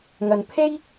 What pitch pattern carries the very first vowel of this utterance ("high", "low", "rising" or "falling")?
low